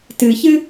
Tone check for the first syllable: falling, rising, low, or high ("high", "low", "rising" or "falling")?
low